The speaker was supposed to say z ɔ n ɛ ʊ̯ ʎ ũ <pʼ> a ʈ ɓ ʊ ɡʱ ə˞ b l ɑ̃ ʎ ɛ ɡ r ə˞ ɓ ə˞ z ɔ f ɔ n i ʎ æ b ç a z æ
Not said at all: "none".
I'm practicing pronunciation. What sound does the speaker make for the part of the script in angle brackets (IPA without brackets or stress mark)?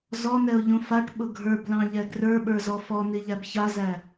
f